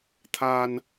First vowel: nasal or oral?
oral